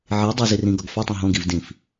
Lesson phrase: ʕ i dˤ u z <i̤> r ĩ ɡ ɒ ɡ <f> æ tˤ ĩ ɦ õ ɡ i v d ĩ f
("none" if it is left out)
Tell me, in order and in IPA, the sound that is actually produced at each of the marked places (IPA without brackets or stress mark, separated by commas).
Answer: i, f